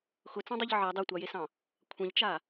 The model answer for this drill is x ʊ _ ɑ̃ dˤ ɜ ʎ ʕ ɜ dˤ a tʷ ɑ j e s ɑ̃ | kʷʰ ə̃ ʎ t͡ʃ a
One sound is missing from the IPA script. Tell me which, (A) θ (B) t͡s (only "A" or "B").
B